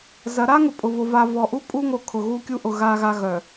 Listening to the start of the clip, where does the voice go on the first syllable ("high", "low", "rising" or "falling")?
rising